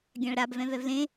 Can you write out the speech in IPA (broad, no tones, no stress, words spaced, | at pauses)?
ɡʲãɭɾab vɛ̃vɛvlẽ